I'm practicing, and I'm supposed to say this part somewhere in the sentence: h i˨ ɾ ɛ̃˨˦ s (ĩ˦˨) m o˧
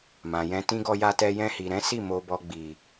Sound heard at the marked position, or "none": i˦˨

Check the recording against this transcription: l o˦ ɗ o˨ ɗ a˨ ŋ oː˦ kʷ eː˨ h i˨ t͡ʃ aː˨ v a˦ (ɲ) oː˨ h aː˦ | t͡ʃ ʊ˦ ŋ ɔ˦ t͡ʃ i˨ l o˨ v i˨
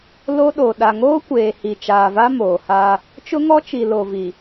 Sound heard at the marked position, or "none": m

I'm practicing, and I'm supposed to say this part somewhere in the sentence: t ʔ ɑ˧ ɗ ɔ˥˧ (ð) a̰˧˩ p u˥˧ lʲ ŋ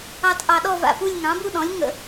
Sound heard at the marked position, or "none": v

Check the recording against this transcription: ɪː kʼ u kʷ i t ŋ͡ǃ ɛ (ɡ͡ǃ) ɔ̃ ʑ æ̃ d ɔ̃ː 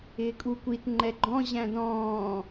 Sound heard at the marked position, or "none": ɡ͡ǃ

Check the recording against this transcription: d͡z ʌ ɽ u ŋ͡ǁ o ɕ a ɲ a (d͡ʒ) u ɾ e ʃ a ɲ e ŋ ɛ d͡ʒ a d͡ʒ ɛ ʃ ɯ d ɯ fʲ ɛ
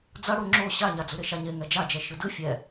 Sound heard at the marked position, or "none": d͡z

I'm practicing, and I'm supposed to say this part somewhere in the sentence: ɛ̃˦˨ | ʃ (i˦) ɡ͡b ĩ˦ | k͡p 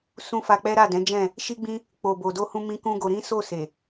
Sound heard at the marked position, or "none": i˦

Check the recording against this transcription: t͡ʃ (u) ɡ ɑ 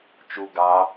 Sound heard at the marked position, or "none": u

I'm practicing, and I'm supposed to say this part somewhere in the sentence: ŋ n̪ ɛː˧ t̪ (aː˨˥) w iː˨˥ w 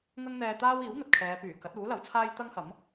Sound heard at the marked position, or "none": aː˥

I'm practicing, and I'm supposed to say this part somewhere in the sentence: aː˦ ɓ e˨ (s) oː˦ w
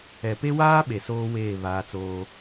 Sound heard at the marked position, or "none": s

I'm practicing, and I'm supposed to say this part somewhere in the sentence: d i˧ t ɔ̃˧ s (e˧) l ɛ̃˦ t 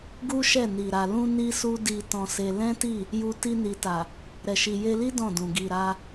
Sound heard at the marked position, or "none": e˧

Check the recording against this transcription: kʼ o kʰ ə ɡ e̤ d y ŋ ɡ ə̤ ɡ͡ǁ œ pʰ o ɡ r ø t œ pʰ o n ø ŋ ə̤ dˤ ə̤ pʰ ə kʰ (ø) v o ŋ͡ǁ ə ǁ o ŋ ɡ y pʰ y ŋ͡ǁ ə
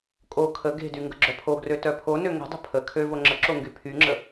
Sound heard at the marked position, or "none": ø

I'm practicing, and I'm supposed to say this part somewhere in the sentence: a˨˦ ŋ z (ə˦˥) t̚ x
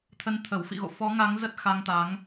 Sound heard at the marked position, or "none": ə˦˥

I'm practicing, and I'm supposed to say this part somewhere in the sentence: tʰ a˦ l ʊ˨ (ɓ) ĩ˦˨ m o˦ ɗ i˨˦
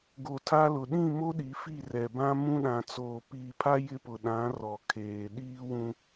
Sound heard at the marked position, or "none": ɗ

